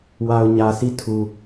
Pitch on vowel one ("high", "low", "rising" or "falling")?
low